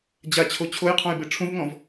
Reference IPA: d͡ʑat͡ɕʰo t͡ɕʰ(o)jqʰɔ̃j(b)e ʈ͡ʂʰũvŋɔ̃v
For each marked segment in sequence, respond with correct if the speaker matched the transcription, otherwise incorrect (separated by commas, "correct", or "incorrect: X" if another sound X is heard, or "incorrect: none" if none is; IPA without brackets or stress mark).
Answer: correct, correct